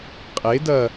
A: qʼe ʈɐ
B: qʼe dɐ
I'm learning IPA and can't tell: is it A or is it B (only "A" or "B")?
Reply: B